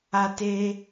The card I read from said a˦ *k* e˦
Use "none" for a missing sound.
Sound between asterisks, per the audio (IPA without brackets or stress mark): t